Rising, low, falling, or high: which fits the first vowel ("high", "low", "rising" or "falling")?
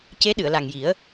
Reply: rising